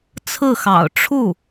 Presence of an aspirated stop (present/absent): present